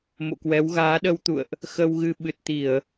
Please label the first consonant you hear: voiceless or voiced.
voiced